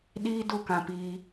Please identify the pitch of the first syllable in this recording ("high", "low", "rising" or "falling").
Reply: high